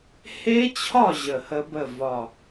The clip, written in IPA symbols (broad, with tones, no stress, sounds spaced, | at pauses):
h e˦˥ t͡ɕʰ ɒ˥˨ ʑ ə˧˩ h ə˦˥ b ə˥˨ v ɒ˧˩